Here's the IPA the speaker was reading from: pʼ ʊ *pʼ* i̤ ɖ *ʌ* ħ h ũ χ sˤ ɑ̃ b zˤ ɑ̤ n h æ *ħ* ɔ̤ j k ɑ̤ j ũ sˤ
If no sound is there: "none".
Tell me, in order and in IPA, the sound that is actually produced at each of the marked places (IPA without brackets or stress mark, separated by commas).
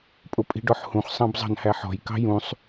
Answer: pʼ, ɔ, ħ